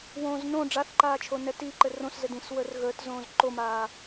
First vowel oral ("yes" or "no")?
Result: no